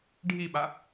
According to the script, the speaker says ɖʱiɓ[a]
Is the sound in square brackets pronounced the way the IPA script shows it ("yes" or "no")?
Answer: yes